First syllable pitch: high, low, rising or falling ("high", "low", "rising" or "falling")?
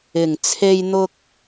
low